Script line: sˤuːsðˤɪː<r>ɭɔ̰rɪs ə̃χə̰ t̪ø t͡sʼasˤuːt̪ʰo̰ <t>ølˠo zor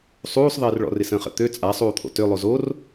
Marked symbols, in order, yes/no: yes, yes

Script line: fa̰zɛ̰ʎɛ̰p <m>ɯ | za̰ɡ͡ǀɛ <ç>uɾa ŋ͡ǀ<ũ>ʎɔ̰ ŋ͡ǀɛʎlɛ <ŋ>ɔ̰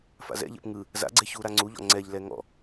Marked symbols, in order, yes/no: no, yes, no, yes

